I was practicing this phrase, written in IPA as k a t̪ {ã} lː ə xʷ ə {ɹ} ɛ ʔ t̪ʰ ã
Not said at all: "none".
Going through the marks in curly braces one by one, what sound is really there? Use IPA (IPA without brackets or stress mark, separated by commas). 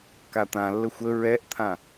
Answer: ã, ɹ